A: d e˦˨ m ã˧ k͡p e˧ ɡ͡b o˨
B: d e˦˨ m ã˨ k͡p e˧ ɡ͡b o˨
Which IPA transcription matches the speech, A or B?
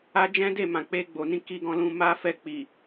B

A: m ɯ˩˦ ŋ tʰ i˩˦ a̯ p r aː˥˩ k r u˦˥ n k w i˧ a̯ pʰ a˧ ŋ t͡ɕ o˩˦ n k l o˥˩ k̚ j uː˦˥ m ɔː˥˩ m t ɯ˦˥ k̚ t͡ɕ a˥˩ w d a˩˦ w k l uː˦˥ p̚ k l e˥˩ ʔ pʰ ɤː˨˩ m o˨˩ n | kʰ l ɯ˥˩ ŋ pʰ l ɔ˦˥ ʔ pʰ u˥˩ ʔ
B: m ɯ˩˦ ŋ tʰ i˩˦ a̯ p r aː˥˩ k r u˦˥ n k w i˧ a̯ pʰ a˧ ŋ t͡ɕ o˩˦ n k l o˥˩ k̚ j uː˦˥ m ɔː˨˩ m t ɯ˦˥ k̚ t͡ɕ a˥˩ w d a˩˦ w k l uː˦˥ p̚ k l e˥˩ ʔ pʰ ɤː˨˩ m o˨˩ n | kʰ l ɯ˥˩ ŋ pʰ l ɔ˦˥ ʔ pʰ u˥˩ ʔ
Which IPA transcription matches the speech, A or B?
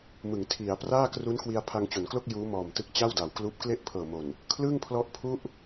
B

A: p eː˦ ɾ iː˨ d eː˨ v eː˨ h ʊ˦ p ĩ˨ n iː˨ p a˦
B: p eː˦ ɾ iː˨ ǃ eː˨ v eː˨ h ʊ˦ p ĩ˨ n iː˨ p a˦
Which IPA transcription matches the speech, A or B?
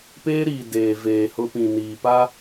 A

